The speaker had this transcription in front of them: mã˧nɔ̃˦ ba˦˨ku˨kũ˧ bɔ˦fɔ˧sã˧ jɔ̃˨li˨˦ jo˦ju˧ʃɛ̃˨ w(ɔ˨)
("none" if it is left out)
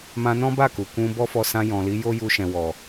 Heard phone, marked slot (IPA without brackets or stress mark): ɔ˨